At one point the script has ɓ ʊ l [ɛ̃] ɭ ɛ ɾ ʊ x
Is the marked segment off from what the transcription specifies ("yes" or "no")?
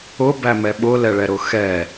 yes